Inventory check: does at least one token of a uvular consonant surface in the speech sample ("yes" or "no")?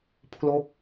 no